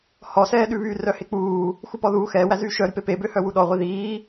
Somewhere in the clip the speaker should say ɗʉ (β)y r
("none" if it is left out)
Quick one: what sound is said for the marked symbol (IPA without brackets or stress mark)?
β